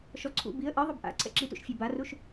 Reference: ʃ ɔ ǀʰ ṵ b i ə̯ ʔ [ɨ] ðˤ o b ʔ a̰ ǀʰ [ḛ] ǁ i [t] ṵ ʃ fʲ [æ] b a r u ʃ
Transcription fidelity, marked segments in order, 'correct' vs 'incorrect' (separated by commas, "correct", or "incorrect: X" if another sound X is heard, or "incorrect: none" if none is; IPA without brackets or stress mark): correct, incorrect: ɛ̰, correct, incorrect: a